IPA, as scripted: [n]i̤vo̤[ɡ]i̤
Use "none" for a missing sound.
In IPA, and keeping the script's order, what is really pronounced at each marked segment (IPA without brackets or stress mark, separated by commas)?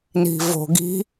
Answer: n, ɡ